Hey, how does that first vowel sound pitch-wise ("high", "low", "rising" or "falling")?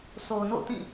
low